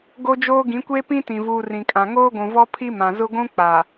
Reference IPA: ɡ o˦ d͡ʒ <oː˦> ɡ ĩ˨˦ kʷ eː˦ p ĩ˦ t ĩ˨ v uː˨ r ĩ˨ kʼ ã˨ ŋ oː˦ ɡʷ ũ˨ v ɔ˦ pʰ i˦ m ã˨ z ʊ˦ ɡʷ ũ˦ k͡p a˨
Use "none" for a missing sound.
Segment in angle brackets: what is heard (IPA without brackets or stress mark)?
oː˦